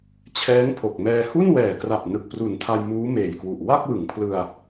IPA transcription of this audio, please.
t͡ɕʰ ɛː˦˥ ŋ pʰ o˨˩ k̚ m ɛː˧ h u˥˩ n w ɛː˨˩ k r a˨˩ p̚ n ɯ˨˩ k̚ p r u˨˩ n tʰ a˧ j m uː˦˥ m eː˨˩ j k w u˨˩ ʔ w a˥˩ k̚ w ɯ˩˦ ŋ pʰ l ɯ˧ a̯

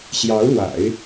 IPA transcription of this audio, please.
ɕ j ɑ˧˥ ʊ̯ l w a̰˨˩˦ ɪ̯

